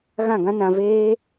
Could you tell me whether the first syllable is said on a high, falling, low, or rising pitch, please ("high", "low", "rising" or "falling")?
falling